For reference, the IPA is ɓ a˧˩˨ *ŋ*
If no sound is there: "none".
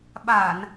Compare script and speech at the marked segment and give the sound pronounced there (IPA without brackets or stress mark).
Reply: n